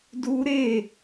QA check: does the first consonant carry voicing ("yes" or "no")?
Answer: yes